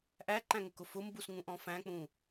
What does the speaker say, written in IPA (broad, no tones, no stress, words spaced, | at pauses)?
ʔæǃæ̃ŋʊkʊ fʊmbusŋũ ʔɔ̃fæ̃k͡pũ